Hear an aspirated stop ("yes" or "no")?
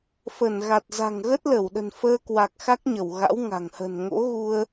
no